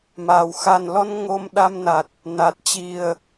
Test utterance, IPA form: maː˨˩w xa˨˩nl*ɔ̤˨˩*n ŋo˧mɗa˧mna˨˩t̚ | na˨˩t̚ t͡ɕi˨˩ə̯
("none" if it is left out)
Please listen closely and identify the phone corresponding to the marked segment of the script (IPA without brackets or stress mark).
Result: ɔ˧